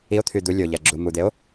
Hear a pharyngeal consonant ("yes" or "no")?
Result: no